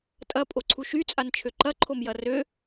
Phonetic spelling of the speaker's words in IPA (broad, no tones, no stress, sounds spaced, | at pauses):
tʼ ɐ pʼ o ǀʰ u ʃ y t͡sʼ a n t͡ʃʰ ø ǃ ɐ ǃʰ o m j ɐ r ø